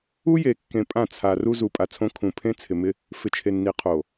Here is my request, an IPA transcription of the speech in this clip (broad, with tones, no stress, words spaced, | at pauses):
u˦je˨kːẽ˨ pʼã˦˨t͡sʰa˨ ru˦ zu˨pʼa˨t͡sʰõ˦ kʰũ˨ pʰẽ˦t͡sʰɪ˨mɪ˦ | fɪ˨t͡ʃʰe˨nːi˨ qʰo˨